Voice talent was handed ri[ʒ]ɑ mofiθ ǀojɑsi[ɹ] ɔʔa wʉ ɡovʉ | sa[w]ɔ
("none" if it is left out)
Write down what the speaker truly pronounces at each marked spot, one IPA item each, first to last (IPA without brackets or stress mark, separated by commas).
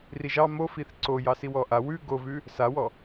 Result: ʒ, w, w